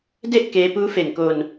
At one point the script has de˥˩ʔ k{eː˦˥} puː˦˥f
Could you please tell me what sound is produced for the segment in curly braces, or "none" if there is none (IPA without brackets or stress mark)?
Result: eː˦˥